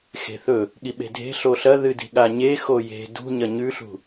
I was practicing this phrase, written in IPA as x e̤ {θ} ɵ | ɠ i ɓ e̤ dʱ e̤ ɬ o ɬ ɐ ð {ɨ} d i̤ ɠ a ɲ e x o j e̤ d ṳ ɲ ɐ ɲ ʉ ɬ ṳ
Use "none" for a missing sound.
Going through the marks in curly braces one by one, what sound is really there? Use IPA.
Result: θ, ɨ

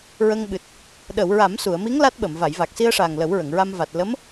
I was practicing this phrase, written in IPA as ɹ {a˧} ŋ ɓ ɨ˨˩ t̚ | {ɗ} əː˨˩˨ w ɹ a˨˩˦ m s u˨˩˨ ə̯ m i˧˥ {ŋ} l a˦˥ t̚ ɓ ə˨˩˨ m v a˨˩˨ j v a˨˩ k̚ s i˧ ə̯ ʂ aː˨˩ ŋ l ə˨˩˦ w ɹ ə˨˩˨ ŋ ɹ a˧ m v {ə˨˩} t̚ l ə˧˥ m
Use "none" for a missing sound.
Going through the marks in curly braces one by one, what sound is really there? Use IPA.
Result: ə˧, ɗ, ŋ, a˨˩

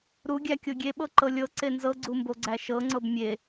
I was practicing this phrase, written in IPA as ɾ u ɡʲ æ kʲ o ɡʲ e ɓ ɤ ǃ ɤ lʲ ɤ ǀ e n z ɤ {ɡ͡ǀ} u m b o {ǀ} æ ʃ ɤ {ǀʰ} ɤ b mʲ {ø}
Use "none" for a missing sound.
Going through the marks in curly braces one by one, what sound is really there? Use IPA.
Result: ɡ͡ǀ, ɡ͡ǀ, ŋ͡ǀ, e

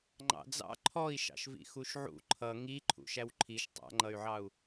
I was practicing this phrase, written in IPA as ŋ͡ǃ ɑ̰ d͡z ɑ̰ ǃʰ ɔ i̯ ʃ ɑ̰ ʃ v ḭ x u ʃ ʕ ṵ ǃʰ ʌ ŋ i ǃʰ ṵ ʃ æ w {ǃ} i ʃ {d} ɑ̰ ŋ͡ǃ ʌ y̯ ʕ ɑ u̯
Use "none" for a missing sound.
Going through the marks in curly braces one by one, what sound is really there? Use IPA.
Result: ǃʰ, tˤ

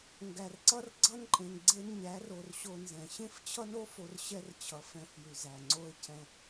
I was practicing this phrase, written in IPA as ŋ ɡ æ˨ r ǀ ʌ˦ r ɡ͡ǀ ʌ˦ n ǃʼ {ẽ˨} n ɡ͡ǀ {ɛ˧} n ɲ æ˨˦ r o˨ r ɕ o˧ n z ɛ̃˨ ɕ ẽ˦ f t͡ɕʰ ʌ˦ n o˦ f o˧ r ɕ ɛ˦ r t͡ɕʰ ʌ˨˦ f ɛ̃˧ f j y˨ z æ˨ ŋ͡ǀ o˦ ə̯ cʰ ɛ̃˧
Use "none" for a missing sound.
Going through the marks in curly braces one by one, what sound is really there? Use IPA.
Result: ẽ˨, e˧

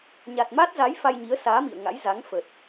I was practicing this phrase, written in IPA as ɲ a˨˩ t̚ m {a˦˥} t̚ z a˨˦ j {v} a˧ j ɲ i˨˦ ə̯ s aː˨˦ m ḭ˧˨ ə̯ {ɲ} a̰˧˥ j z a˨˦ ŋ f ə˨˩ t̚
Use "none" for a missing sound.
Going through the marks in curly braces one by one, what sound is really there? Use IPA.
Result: a˦˥, f, ŋ

